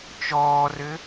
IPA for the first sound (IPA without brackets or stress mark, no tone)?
t͡ʃ